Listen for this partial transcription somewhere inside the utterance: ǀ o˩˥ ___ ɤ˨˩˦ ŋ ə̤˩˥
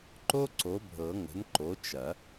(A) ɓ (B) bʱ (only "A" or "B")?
B